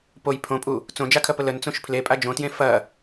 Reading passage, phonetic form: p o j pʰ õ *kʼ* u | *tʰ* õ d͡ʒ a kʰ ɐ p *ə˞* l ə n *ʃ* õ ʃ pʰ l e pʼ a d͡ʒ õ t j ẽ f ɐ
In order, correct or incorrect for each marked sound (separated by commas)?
incorrect, incorrect, incorrect, incorrect